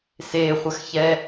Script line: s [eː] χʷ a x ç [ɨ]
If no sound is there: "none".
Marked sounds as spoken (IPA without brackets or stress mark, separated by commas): eː, ɛ